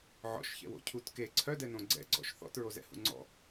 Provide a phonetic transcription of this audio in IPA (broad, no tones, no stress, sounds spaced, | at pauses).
ʕ ɔ̰ ʃ ç ɛ̰ w o̰ cʰ u t k e ǀʰ œ d ɛ n õ ɡ͡ǀ ɛ̰ ɡ͡ǀ ɔ̰ ʃ θ ɔ̰ t ɹ o z ɛ̰ h ṵ ŋ͡ǀ ɔ̰